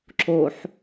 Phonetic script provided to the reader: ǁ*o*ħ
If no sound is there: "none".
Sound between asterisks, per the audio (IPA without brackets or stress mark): o